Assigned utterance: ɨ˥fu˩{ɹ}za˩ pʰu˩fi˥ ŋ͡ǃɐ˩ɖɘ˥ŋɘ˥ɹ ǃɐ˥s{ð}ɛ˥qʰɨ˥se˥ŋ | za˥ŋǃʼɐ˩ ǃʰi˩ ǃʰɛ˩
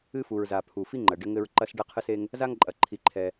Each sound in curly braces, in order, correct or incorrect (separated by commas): correct, incorrect